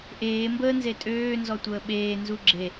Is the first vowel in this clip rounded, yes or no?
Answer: no